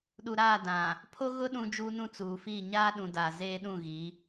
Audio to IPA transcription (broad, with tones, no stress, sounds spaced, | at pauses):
ɗ u˨ ɾ aː˦˨ d ã˨ | pʰ o˦ ɣ ʊ˦ ɗ ũ˦ d͡ʒ uː˦ n ũ˦ t͡s uː˨ f iː˦˨ ɲ aː˦ ɗ ũ˨ d a˨ z eː˦ ɗ ũ˦˨ ɣ i˨˦